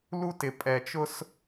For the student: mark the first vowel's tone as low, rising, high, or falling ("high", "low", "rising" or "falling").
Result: high